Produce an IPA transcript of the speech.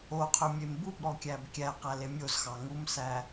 o qʰ ø mʲ e m b u b ɾ ɔ kʲ æ b kʲ æ q æ l e mʲ o z x ɑ ŋ u m s æ

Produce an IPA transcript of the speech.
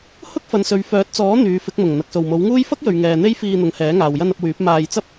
h ʊ˥ k̚ f ɐ˨˧ n s ɵ˨˧ ɥ f œː˨˥ t̚ t͡s ɔː˨˥ n̪ yː˨˧ f ɪ˨˥ k̚ m ʊ˨˩ ŋ n̪ ɐ˨ k̚ s o˨˩ w m o˨˥ w ŋ uː˥ j f ɐ˥ k̚ j ɵ˨ ɥ ŋ ɛː˨ n̪ e˥ j f iː˧ n̪ ʊ˨˧ ŋ h ɛː˨˥ ŋ aː˨ w j ɐ˧ n ɐ˧ p̚ w yː˨˥ p̚ m aː˧ j t͡s ɐ˥ p̚

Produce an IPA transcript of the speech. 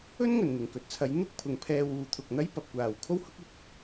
ɵ˥ n ŋ ɵ˨˩ n n̪ ɪ˨˩ ŋ k ɵ˨ t̚ t͡sʰ ɐ˨˧ j n̪ ʊ˥ k̚ pʰ ʊ˨ ŋ pʰ ɛː˧ w uː˨ t̪ʰ ʊ˨ k̚ n̪ ɐ˥ j p ɐ˨ p̚ kʷ aː˨ w kʰ o˥ w h ʊ˥ k̚ ɪ˨˥ k̚

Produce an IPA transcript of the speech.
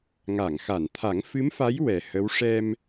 ŋ a˨˩˨ ŋ x a˨˩˨ n t̪ʰ a˨˩˦ ŋ f ɨ˧˥ m f a˧˥ j w ɛ˨˩ h ə˧˥ w ʂ ɛ˧ m

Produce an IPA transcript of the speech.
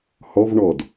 h ɔ v ɳ ɔ d

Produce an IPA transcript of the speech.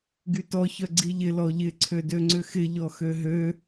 ɡ y t ɔ ç œ ɡ͡ǀ i ʎ ɪ l ɔ ʎ ɪ ǀʰ ø d ø ŋ͡ǀ ʏ x ɪ ʎ ɔ x ø ɦ ø

